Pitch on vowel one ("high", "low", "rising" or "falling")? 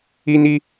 high